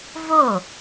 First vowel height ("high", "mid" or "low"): mid